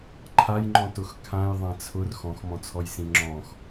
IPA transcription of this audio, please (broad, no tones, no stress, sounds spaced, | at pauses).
ǃʰ a j ŋ͡ǃ ɔ̃ t ʊ x kʰ ã j ðˤ ã t͡sʰ ʊ r x ɔ̃ x m ɔ̃ t͡sʰ ɔ j s ĩ ŋ͡ǁ ɔ̃ x